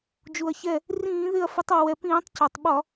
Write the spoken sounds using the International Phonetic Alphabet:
d͡ʒu˩ɐ̯çɛ˧˩ | rĩː˧˩˧ðɪ˧˩ɐ̯ fɪ˨˦tˤɔ˩wɛ˩pĩː˧˩˧tˤ cɔ˩tˤɓɒ˧˩˧

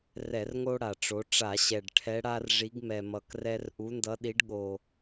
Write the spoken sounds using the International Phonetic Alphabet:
rɛ˧˩˧rŋo˦ ɽa˨˩ʈ͡ʂo˨˦ ʈ͡ʂa˧˩˧ɕɛ˨˩ɖ ʈʰɛ˨˦ɽa˦rʐi˨˦ɡ mɛ˨˩mʌ˨˩krɛ˦r ʔu˨˦ndʌ˨˦ɗi˨˦ɖ ɠo˨˩

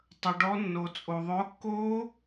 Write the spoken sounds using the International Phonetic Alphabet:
tˤə˩ɖɔ˨˦nːo˩ t͡sʼo˩ðˤʊː˨˦kːo˦˥

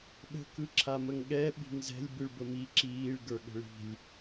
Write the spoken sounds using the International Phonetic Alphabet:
ɗə̤ kɯǁʰaməŋɠɛ ɓi̤ŋzɛ̤lʲ bɯɭbəmi ǁiːɭ ɡə˞ɠə̤ɭi̤lʲ

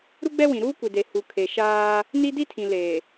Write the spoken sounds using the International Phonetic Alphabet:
ɾu˦ɡ͡bɛ˦wĩ˨ ɾuː˦ kʷi˨de˨ hu˨ kʰe˨ʃaː˦ | ni˦ di˦tʰĩ˨ leː˨

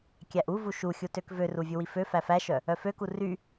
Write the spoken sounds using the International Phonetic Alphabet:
kʲæʔu vuʃuxʲutøk vøru vʲuwifø fæfæʃœ | œføku ry

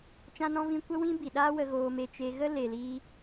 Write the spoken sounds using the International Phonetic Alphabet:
t͡ʃã˧nɔ̃˧vĩ˧ kʷə˦wĩ˦bi˨ɗaː˦ wə˧ɣoː˧me˧ t͡ʃe˧ɣə˦ le˨liː˧

